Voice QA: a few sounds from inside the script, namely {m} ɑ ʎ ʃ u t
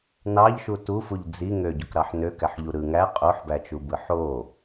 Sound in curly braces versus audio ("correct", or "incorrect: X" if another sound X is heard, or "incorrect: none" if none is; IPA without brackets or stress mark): incorrect: n